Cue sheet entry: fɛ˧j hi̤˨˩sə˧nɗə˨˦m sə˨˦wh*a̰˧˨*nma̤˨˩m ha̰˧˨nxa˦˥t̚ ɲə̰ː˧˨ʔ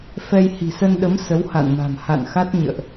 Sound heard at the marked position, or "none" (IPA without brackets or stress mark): a̰˧˨